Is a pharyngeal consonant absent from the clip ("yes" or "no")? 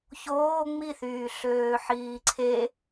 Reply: no